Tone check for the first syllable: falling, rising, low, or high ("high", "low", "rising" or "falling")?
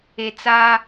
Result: low